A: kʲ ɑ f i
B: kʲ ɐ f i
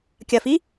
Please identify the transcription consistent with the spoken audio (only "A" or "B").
B